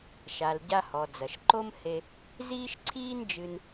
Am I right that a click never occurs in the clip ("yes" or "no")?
no